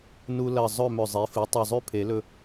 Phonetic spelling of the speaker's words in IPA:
n u˧ l ɐ˧˩ zˤ ɵ˥˨ m ɵ˧˩ zˤ e˩˥ f ɨ˩˥ tˤ u˧˩ zˤ ʉ˥˨ pʰ e˨˩˦ l ɵ˧

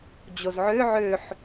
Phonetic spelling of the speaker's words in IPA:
d͡ʑ o z ʕ ø ʕ ø ħ

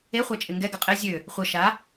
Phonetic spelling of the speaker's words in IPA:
e χʷ a t͡ʃʼ ɪ ŋ ɡ ɛ ɡ ə qʼ ɪ zʲ ø | χʷ ə ʃ a

